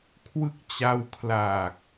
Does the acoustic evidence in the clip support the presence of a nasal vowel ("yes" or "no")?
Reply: no